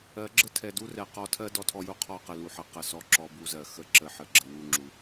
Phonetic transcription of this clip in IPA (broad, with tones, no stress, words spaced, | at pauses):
ɜ˨˦ɡ͡ǁə˦ tʰɛ˨du˦ rɛ˨ qɔ˨tʰɜ˦ dɔ˦tʰɔ˦ju˦qʰɔ˦˨ qə˨lu˨ħə˨˦ qə˨ sɔ˨ǁɔ˨ bu˦zɜ˨ xə˦˨ ǁə˨ ħə˨ ɡ͡ǁə˨ wu˦˨ŋ͡ǁu˨